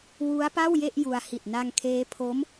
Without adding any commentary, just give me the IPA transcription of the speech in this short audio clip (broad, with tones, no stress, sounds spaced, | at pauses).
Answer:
w u˦˥ a̯ p a˥˩ w j e˥˩ ʔ j u˧ a̯ h i˨˩ t̚ n a˧ ŋ kʰ eː˦˥ pʰ o˦˥ m